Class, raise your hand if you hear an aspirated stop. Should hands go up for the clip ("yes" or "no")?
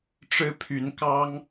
yes